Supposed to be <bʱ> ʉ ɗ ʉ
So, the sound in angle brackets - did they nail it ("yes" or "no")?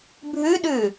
yes